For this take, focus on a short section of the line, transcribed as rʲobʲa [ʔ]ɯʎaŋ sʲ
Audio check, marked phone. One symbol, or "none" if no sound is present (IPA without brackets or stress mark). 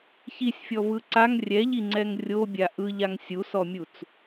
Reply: ʔ